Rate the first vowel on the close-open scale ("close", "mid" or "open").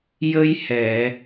mid